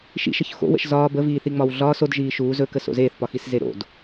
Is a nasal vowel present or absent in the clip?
absent